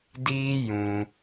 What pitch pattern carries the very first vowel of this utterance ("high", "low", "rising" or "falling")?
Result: high